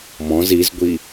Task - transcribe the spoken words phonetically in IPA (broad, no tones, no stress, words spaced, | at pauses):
mɔ̃z izɡʷi